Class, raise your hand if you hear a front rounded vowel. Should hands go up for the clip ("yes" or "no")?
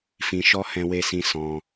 no